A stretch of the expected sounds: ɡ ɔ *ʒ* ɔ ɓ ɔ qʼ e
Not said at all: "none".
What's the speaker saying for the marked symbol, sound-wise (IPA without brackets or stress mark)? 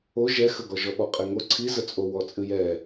ʒ